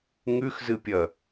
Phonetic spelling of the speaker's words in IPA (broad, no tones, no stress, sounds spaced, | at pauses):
ŋ ʉ x z ɨ pʲ ɐ